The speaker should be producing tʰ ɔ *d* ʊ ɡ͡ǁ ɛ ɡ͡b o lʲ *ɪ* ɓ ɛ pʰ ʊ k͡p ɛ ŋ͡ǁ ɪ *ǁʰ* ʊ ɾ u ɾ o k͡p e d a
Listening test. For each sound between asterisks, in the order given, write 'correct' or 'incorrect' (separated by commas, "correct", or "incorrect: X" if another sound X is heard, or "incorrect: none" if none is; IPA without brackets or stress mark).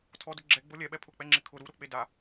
correct, incorrect: ɛ, incorrect: kʰ